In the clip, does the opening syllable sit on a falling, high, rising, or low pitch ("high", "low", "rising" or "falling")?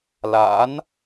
rising